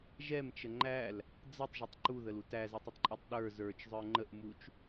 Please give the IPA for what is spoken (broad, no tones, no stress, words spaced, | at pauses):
ʒɛmt͡ʃə ŋ͡ǃæl | d͡zətˤʒɪtˤ ǃuðəlut æzɛtˤətˤǃʼutˤ ɗə˞ zə˞t͡ʃzˤə˞ ŋ͡ǃəʔmut͡ʃ